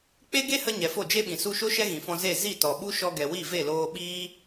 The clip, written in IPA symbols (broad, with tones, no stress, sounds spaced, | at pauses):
k͡p e˦ ɡ e˦ h ə˧ ɲ ɛ˨ f o˦˨ d͡ʒ e˦ ɓ ĩ˨ s u˧ ʃ o˦ ʃ ɛ˦ ɣ ĩ˨ f ɔ̃˧ z e˦˨ z i˦˨ t ɔ˨ ɓ u˦ ʃ ɔ˧ ɡ ɛ˨ w i˦˨ v e˦˨ l oː˧ ɓ iː˦